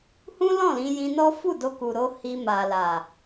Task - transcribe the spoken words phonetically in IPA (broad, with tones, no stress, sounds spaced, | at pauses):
h ũ˦ l ɔ̃˦˨ l ĩ˧ j ĩ˧ n ɔ˦ f u˦˨ d o˧ k u˨ ɾ o˧ h i˧ m a˨ l a˨